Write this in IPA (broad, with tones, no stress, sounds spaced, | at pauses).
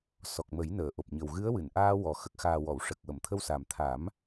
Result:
s ɔ˨˩ k̚ m ə˨˩˦ j n əː˨˩˨ ʔ o˨˩ p̚ ɲ ə˨˩ w ɣ ɨ˧˥ ə̯ w ɨ˨˩˨ n ʔ aː˧ w ɔ˨˩ x ə˨˩ k̚ x aː˨˩ w ɔ˨˩˨ w ʂ ə˨˩ k̚ w ə˨˩˨ m t̪ʰ ə˧ w s a˨˩ m t̪ʰ a˨˩˦ m